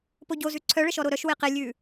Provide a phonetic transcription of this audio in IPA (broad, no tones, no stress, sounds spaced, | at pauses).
p o ɟ o z ʉ ǀʰ œ ɭ ə ʃ ɔ ɾ o ɾ œ ʃ w e q e lʲ ʉː